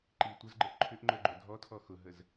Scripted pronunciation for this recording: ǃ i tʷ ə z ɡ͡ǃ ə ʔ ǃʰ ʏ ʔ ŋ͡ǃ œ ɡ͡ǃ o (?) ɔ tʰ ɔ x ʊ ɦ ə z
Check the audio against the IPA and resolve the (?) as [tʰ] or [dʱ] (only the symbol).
dʱ